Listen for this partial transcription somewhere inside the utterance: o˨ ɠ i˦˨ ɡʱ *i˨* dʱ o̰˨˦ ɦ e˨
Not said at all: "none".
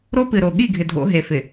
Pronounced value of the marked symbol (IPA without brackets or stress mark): ɪ˨